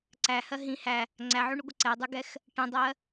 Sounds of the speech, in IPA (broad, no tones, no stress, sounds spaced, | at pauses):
ǀ æ h ɜ ɦ ĩ h æ | ŋ͡ǀ æ ʕ u ɳ u ɡʷ ʌ ǀ ɛ dˤ u ɡ ɛ x | ʈ ə̃ dˤ ɜ